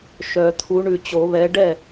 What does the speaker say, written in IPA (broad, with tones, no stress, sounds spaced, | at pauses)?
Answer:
ʃ œ˨˩˦ t̪ʰ u˨˥ ɳ ʉ˨˩ t͡ɕ o˨˩˦ β ɛ˨˥ ɖ ɛ˥˩